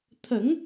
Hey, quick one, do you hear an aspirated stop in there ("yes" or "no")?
yes